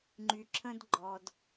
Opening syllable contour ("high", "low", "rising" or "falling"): low